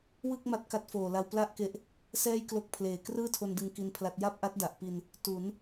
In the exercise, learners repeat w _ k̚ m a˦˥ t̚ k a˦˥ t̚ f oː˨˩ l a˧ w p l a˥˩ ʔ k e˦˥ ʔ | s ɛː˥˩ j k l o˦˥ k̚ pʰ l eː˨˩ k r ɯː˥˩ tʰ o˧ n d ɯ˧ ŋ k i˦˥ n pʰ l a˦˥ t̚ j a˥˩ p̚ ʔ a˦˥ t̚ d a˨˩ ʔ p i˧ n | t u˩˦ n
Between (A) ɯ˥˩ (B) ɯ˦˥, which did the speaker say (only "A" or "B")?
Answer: A